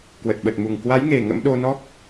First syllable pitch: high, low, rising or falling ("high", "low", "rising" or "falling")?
low